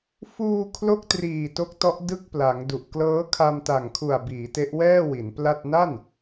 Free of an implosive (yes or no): yes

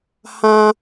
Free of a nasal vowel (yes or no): no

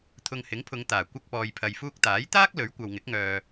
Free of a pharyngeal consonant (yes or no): yes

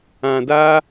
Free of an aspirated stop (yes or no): yes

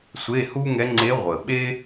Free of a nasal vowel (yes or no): yes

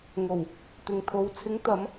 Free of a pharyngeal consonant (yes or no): yes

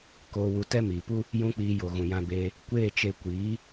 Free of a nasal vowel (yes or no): no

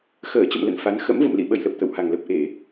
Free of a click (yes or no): yes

